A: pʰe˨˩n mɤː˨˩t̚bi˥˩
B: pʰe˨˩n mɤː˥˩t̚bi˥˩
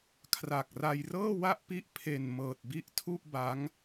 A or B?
A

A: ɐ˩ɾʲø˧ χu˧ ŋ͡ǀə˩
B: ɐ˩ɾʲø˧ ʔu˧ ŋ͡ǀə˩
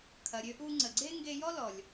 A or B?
B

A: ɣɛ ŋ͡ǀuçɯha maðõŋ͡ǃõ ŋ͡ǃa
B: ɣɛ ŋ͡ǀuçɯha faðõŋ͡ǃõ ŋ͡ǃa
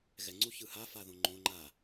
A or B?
B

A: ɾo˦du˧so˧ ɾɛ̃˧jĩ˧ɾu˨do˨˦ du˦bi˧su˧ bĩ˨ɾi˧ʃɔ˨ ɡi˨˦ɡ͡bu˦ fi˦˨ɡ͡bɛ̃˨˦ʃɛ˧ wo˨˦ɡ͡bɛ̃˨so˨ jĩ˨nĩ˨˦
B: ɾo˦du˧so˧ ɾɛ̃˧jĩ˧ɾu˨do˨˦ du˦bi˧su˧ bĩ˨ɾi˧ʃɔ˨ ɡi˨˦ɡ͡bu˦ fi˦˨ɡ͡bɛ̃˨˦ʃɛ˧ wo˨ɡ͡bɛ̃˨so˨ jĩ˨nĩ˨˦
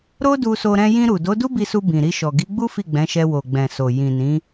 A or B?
B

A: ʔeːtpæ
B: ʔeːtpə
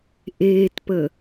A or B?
B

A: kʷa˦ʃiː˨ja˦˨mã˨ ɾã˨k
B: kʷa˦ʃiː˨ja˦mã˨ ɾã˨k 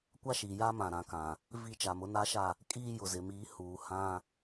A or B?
B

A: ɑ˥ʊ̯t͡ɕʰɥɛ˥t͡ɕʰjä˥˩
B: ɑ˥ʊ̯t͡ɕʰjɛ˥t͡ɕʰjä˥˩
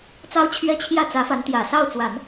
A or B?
A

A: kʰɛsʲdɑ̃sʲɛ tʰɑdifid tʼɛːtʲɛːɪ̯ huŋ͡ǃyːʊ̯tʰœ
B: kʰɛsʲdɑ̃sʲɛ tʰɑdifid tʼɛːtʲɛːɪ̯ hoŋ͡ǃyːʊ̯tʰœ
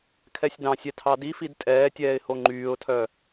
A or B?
B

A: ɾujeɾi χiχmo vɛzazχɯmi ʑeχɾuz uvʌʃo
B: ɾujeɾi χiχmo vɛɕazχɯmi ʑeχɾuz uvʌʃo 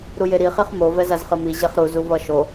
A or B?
A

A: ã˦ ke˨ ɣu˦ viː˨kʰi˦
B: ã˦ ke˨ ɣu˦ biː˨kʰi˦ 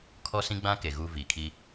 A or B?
A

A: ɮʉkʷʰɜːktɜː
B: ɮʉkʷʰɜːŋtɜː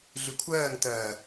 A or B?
B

